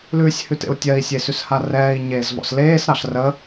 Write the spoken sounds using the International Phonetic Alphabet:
l ʉː sʲ h ʉ t ḛ u̯ tʲ ɜ i̯ sʲ e s ʉ s h a r ɛː i̯ ɲ eː z v ɔ̰ s l eː s ɾ ɑ ɬ r ə

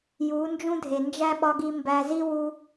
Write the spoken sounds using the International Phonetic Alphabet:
j u˨˦ n d͡ʒ ũ˦ dʱ e˨ n d͡ʒ æ˦ ɓ ɒ˧ ɡ i˧ m b æ˧ z i˦ w u˧

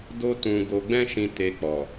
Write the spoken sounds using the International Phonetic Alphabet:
d o˦ t ũ˧ ɡ o˧ ɡ͡b ɛ̃˦ ʃ ĩ˧ t e˧ k͡p ɔ˨

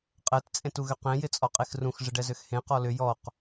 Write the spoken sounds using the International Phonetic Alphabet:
qʼ ɛ t t͡sʼ ẽ t u ɣ ʏ q ẽ j ɪ t͡sʼ ɔ qʼ e x r ũ x ʐ ɪ ɖ ɛ z ø x h ẽ q ɔ l ʏ j ɔ q

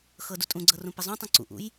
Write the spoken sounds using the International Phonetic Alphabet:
x ɤ d u tʼ ũ ɡ͡ǀ ɤ r ũ p ɪ zˤ ũ tˤ ũ ǀ ṵ ʔ ṵ j

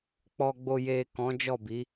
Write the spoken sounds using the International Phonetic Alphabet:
k͡p ɔ˧ ɡ͡b o˧ j e˨ k ɔ̃˨˦ d͡ʒ ɔ˦˨ b i˨˦

